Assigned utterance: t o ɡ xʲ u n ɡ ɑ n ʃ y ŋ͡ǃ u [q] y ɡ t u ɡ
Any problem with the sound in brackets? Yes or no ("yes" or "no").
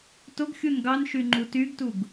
yes